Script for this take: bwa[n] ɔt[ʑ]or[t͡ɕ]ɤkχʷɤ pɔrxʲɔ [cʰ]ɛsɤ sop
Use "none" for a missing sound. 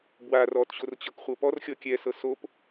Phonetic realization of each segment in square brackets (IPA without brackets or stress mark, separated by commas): r, ɕ, t͡ɕ, kʲ